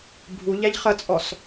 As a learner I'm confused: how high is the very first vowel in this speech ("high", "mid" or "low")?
high